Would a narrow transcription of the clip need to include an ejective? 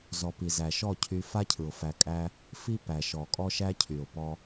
yes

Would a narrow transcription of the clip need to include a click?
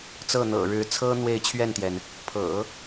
no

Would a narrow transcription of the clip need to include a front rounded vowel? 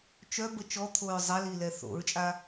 yes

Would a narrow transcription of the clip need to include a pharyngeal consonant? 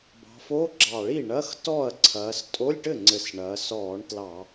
no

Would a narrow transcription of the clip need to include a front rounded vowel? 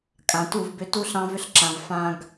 yes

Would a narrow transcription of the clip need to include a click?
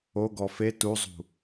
no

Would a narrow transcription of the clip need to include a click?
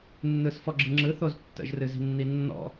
yes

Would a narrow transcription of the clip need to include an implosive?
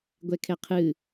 no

